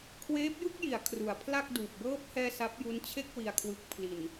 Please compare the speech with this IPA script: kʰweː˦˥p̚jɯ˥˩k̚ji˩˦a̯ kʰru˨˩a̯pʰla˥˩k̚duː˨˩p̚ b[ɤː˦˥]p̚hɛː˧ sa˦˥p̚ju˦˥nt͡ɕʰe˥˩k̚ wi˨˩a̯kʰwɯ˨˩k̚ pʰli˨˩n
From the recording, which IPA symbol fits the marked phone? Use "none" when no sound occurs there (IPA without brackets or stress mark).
ɤː˦˥